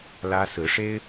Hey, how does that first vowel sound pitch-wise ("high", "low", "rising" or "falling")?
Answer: high